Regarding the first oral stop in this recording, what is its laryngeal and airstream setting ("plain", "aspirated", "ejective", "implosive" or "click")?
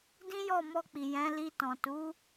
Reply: plain